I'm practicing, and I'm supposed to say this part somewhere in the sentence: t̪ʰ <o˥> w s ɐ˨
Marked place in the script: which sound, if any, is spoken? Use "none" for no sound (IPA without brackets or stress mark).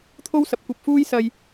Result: o˥